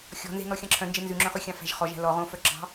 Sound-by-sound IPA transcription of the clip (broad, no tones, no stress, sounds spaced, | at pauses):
xʲ ɔ̤ n z e̤ n ɔ xʲ ɑ̃ ǁʰ œ̃ n d͡ʒ e n z ʉ ŋ͡ǁ œ̃ χ ʉ xʲ ɑ̃ f æ̤ ʒ χ ɔ ʒ æ̤ l ɔ ʁ õ f œ ǁ ɑ̤